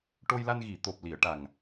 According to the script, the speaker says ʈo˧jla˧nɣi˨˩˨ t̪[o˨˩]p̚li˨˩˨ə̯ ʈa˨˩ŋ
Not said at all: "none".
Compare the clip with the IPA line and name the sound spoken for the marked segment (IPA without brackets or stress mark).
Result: o˨˩